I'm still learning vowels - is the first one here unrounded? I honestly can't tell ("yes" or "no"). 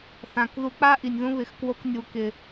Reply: yes